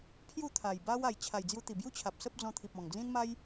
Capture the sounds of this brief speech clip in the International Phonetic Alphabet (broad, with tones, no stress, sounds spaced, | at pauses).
pʰ j u˥˧ t̪ʰ a˨˩ j b a˦ w a˨˩ j t͡ɕʰ a˨˩ j d͡z j u˧ t̪ i˨˩ b j u˦ t͡ɕʰ a˨ p̚ s ə˦ p̚ d͡z ɔ̃˧ t̪ʰ i˨ p̚ ɔ̃˨˩ ŋ d͡z ĩ˦ n m a˦ j